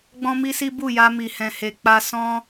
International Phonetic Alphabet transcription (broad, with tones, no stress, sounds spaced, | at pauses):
ɡ͡b ɔ̃˦ m i˦ s i˦ b u˦˨ j a˧ m i˨ h ɛ̃˨ h e˨ k͡p a˧ s ɔ̃˦